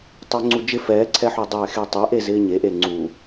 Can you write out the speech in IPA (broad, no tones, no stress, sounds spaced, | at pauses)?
tˤ ɪː ŋ͡ǀ u d͡ʒ ɪ f ɛː ǀʰ ɛ ħ u dˤ ɛː x e tˤ ɛ ʔ e z ɪː ɲ e ʔ e ŋ͡ǀ u